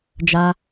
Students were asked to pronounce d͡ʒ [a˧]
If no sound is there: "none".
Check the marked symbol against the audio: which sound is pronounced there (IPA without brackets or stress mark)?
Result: a˧